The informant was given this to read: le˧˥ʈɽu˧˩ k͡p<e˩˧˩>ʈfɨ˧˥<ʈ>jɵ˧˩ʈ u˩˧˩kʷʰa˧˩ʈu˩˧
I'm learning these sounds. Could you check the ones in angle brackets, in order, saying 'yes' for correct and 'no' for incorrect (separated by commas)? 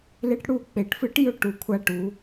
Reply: no, yes